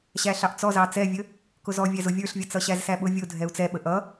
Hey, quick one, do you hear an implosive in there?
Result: yes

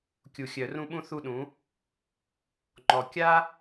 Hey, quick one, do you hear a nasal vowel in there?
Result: yes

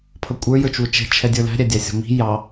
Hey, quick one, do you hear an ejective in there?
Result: yes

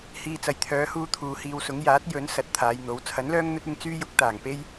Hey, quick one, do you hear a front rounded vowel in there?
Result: yes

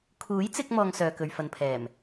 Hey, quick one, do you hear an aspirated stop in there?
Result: yes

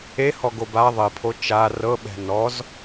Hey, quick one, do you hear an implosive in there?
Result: yes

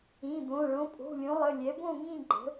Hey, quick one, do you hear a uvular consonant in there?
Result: no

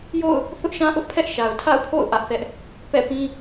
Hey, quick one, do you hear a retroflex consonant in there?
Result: no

